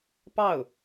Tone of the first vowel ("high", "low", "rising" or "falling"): falling